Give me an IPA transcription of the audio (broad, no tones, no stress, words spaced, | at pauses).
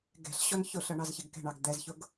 ɡɛ̤ɬɕɔn çʊɬʌɳɑzçɪɡ kɛ̤ɳɑɡ d̪ɛzçʊɡ